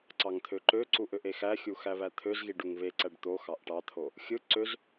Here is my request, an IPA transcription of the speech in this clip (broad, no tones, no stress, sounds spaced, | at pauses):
ǀ ɑ ŋ t̪ʰ ø ǃ ø ǀ u ʔ ø ʔ e x æ xʲ u x æ β æ t̪ʰ ø z ɣ i ɖ u ŋ β e ǀ æ ɖ t̪ o x ɑ ʔ ʈ ɑ t̪ʰ o | xʲ ɯ ǀ ø z